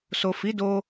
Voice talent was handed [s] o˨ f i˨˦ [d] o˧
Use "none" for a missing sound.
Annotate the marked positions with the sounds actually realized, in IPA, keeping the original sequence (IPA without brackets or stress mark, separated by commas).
s, d